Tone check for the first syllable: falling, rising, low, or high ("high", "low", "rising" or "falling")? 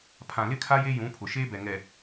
low